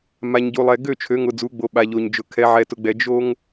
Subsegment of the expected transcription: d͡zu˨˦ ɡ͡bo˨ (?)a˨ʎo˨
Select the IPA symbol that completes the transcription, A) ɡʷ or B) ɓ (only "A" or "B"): B